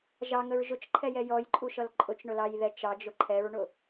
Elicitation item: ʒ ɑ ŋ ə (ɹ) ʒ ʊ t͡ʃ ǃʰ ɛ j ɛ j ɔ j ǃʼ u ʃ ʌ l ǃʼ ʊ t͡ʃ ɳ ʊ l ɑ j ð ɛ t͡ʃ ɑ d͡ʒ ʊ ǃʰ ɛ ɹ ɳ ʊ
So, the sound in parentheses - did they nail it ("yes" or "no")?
yes